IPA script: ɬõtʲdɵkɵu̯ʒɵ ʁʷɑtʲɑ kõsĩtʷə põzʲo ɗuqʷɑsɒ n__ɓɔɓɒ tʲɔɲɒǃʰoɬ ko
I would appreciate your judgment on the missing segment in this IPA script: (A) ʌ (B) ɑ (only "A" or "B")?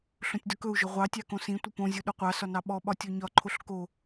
B